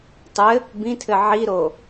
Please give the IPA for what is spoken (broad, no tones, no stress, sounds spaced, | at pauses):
tˤ ɘ | b ĩ tʰ ɘ ʕ i ɾ o